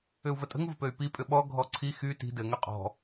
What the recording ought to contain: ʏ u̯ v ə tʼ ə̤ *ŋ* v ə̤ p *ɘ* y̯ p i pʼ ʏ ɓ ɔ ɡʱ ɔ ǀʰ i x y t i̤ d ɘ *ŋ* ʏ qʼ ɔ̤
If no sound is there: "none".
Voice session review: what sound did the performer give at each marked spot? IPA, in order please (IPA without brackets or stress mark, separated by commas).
ŋ, ø, ŋ